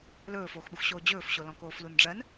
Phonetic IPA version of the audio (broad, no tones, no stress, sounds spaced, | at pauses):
l ɵː f oː x ɓ u x ɕ oː d͡ʑ ɵː f ɕ o l ɔ̃ k oː f l u n ɖ͡ʐ ɜ n